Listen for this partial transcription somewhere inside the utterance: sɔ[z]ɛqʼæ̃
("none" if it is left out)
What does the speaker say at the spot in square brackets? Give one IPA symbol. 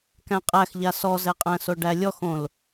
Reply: z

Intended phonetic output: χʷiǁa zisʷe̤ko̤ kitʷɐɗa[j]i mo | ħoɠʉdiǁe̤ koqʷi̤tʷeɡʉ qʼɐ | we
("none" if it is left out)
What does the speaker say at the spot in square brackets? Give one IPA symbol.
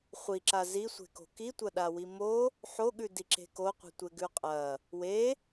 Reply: w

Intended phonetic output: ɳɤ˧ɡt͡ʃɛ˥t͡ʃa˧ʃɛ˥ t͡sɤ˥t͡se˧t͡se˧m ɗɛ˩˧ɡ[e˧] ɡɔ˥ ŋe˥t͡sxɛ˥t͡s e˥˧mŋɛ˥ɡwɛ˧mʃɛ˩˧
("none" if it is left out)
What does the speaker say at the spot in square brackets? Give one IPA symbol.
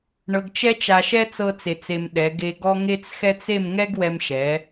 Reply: e˧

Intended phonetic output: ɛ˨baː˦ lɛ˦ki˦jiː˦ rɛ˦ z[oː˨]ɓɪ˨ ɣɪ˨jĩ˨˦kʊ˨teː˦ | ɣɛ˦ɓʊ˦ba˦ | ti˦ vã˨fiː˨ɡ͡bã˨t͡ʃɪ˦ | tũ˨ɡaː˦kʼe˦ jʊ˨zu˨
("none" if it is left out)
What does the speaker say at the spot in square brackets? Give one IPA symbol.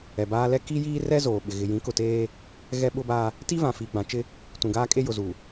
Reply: oː˨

